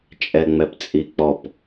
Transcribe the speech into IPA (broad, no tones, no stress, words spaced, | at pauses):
t͡ʃʼɛŋ͡mɛpt͡sʼik͡pɔp